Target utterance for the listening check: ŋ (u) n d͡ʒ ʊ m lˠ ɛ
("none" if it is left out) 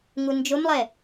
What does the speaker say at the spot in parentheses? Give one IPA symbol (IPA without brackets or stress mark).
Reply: u